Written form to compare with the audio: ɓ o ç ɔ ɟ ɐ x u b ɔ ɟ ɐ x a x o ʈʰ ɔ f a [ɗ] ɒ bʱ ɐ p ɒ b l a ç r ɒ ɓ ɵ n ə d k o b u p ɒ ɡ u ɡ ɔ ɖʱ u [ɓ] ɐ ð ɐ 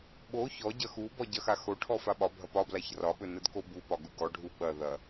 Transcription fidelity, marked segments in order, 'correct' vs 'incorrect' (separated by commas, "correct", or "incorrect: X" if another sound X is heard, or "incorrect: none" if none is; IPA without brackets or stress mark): incorrect: ɓ, correct